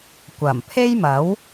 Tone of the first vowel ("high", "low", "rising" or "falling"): low